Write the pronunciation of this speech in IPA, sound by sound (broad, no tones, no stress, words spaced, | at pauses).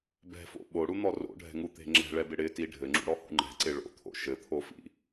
bɛ̤fo̰ ɓoɽun̪ɔ ro̰ɖʱɛ̤ŋut̪e̤ ŋ͡ǁɛ̤ɭɛbɪ ɽɪti ɖʱɘŋ͡ǁṵɽɔhṵ ŋ͡ǃɛ̤ǀɪ ɭo̰t̪ʰo̰ ʃɘt̪ʰofḭ